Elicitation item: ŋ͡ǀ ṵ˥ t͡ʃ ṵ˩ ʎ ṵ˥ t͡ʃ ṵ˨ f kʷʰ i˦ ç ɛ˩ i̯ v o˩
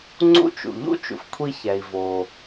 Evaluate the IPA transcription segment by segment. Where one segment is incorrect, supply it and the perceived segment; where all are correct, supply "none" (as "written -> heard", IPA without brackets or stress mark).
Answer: none